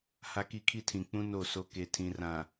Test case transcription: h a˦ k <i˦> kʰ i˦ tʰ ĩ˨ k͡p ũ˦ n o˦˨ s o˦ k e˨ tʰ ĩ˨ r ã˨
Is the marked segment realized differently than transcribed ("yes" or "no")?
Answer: no